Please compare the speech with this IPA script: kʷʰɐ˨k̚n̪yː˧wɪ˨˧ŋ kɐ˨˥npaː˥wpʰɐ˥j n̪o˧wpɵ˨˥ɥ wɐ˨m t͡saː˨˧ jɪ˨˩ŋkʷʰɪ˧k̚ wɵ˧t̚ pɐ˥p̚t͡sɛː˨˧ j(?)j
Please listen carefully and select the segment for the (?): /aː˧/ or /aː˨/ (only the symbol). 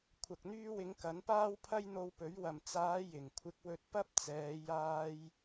aː˧